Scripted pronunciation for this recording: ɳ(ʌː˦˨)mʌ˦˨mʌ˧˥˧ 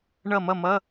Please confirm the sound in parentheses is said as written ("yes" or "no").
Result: no